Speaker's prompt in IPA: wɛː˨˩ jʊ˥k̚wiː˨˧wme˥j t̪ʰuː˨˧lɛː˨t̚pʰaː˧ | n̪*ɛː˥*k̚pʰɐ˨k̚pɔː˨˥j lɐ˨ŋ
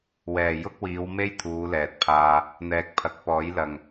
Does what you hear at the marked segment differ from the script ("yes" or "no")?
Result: yes